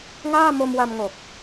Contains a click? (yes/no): no